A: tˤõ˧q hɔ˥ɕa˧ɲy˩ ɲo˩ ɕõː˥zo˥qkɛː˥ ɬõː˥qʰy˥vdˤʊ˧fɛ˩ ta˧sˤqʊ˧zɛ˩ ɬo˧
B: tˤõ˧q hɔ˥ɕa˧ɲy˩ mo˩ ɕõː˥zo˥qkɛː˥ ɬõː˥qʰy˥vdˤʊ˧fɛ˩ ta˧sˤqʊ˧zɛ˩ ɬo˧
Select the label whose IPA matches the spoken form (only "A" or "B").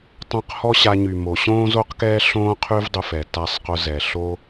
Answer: B